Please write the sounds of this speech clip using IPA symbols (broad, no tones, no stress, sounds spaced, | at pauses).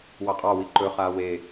w ɑ qʼ ɑ w i ǃ ɵ χ aː w e